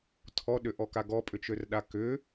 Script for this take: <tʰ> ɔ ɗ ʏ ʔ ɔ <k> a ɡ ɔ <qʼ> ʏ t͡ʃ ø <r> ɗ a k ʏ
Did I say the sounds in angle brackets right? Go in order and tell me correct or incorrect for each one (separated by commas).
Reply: correct, correct, incorrect, correct